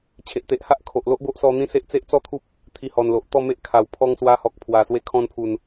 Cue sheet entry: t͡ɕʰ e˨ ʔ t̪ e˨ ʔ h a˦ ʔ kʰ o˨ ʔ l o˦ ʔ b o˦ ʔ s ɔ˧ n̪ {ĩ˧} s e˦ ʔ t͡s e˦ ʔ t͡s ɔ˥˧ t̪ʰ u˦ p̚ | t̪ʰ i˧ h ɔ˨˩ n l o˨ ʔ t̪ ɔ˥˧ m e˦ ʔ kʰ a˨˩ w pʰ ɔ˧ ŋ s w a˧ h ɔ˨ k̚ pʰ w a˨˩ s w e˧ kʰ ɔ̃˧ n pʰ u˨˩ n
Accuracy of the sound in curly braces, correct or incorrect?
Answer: incorrect